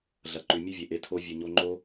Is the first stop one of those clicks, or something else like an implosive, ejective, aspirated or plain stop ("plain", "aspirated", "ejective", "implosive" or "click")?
click